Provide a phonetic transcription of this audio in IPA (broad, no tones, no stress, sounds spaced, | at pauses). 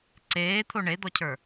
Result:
ǀ eː t̪ʰ o ɳ e d̪ ɔ cʰ ə˞